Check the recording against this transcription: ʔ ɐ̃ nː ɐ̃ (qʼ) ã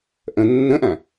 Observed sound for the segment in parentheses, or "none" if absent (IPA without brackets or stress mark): ʔ